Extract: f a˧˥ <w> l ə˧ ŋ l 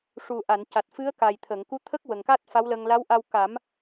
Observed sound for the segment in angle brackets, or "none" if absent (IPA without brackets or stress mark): w